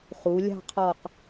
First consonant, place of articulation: uvular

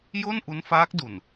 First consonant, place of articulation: palatal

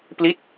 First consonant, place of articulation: labial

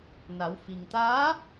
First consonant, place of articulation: alveolar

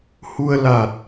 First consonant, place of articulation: glottal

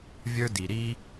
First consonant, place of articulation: labial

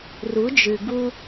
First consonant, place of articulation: alveolar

